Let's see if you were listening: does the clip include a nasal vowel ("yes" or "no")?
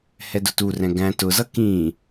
yes